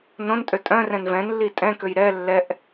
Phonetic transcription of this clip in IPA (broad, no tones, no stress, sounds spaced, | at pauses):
n õ n tʼ ø tʼ œ̃ r ɛ̃ n v ɛ̃ n lː i tʼ ɛ̃ k ø j ɾ ɛ lː ɛ ʔ